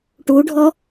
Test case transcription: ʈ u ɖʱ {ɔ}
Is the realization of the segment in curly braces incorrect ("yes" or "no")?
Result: no